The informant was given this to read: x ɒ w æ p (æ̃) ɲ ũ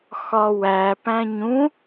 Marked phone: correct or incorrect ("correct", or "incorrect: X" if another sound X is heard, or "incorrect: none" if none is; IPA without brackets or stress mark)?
correct